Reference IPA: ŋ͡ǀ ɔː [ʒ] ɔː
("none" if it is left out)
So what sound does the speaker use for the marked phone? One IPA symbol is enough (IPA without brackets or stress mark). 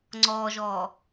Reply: ʒ